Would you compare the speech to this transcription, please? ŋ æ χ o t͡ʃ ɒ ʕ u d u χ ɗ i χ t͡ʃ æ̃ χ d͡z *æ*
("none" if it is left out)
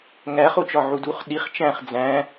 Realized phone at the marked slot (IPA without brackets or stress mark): æ̃